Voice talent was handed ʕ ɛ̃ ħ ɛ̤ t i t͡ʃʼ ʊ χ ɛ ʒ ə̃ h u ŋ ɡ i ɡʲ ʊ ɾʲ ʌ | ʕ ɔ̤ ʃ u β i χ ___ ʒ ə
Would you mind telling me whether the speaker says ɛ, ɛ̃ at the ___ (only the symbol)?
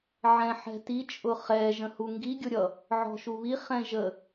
ɛ̃